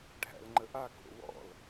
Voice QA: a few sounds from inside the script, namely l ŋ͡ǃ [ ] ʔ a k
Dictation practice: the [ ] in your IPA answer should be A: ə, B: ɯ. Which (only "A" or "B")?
A